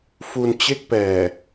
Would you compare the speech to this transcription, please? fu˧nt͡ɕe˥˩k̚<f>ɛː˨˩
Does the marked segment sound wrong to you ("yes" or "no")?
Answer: yes